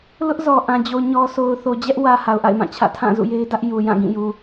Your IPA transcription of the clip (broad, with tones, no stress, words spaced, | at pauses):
lʊ˦ʔzɔ˨ ʔã˨d͡ʑo˨ɲɔ˨so˨ʊ̯ θo˨d͡ʑɛ˦ʔwä˨ ha˨ʊ̯ʔa̰˦˨ɪ̯mã˦˨t͡ɕʰä̰˦˨ tʰã˦˨ zṵ˦˨je˦ɪ̯dä˦ʔ ju˨jã˦˨ ɡĩ˦˨ju˨